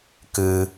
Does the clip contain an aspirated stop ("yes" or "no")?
no